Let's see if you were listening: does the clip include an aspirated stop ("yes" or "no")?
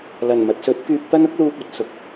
no